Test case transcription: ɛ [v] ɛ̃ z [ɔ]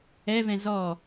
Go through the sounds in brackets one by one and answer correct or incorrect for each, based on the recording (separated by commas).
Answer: correct, correct